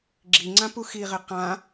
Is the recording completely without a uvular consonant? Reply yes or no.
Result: no